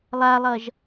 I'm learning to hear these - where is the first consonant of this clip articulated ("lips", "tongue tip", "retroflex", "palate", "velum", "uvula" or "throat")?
tongue tip